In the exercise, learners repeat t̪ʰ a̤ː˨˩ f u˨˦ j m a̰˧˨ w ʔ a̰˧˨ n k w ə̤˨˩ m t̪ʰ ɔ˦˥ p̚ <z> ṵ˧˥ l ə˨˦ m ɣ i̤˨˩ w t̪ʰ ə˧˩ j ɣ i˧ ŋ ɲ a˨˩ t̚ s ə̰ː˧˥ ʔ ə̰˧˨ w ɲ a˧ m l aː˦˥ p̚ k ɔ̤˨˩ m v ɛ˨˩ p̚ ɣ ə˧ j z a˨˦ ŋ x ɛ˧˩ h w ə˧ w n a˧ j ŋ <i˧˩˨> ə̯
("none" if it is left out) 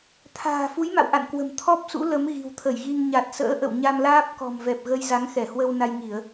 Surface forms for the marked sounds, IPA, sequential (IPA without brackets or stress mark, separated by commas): s, i˧˩˨